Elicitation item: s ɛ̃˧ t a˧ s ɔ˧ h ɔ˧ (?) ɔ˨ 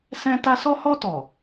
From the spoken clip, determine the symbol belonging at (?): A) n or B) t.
B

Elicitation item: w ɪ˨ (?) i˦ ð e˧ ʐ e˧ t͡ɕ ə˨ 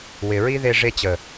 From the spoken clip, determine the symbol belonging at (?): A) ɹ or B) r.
A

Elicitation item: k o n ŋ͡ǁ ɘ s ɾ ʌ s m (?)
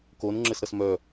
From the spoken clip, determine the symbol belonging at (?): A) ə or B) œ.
B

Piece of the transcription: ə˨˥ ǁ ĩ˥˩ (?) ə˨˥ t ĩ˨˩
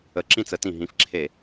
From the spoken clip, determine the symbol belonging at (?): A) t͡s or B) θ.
A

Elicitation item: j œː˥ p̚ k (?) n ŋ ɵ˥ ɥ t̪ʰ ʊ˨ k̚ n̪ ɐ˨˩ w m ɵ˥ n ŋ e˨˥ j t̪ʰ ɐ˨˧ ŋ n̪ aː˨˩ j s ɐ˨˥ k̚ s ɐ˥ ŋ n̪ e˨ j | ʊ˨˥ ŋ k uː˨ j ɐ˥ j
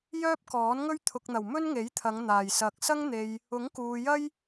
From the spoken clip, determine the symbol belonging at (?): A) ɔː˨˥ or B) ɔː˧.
A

